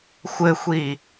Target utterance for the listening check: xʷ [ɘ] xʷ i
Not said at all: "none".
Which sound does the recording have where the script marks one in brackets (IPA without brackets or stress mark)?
ɘ